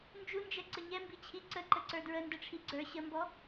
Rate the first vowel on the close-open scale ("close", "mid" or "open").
close